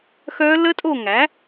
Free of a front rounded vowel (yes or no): no